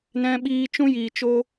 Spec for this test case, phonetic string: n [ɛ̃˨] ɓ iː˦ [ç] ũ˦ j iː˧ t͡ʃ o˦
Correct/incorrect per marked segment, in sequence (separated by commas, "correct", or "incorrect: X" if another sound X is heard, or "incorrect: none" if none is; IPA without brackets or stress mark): incorrect: ɛ̃˦, incorrect: t͡ʃ